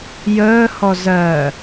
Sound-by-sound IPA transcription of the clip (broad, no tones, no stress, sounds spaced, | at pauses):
j əː h ɔ z ɜ